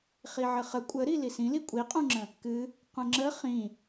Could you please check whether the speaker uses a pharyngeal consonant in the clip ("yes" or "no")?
yes